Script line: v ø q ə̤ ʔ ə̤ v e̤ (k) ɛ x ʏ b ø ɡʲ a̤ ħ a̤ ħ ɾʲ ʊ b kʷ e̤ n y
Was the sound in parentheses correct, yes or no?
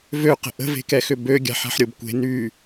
yes